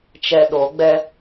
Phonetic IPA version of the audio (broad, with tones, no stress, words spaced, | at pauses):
t͡ʃɛ˧ɗo˨˦ ɡ͡bɛ˦